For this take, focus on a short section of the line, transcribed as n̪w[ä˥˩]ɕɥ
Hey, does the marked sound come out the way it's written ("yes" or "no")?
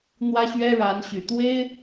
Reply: no